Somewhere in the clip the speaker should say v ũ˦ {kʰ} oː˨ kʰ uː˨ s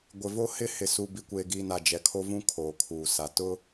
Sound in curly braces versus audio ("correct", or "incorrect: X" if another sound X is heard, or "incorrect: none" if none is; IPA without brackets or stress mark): correct